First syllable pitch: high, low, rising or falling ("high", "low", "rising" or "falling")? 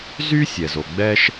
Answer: high